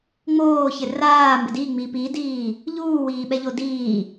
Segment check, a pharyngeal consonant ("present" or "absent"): absent